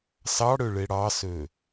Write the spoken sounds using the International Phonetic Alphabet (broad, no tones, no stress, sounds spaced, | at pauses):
s ɑ ɽ ø ɭ e ɽ ɑ s ø